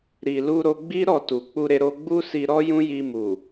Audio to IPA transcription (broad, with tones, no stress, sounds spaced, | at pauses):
ɾ i˨ l u˧ ɾ o˧ ɡ͡b i˦ ɾ ɔ˦˨ t u˨ k͡p u˧ ɾ e˧ ɾ o˧ ɡ͡b u˦ s i˧ ɾ ɔ˦ j ũ˦ j i˧ m u˨